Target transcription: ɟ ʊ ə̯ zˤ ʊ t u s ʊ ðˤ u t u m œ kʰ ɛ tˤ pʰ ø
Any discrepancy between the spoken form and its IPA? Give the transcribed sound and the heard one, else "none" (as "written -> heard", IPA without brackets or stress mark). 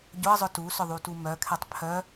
ø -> œ